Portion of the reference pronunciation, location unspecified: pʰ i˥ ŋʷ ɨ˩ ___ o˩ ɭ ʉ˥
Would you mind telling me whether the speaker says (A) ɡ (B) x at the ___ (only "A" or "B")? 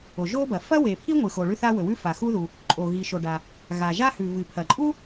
B